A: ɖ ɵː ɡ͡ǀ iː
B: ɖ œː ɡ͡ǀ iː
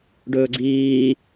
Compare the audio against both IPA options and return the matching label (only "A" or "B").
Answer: A